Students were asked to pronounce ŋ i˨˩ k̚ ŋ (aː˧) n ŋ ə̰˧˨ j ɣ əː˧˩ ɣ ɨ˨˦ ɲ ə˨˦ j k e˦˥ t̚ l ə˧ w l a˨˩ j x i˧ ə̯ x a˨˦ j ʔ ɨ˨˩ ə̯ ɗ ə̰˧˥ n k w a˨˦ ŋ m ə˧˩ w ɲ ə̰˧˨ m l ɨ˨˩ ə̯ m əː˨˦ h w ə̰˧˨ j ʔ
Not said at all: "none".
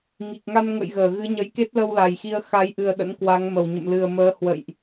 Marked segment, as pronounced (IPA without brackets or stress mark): a˧